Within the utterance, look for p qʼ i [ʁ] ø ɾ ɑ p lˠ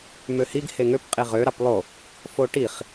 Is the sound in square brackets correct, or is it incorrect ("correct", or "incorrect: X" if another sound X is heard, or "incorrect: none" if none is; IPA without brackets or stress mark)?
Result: correct